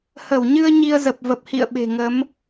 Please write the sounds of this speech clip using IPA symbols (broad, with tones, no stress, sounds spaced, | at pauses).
h ə˧˩ w ɲ ɨ˧ ə̯ ɲ i˧ ə̯ z ə˨˩ p̚ v ə˨˩ p̚ h ḭ˧˨ ə̯ ɓ e̤˨˩ ŋ ə˨˦ m